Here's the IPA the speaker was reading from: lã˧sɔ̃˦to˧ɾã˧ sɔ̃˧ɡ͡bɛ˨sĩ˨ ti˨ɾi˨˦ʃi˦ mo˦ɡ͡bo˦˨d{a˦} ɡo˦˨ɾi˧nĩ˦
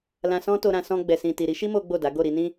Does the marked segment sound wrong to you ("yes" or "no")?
yes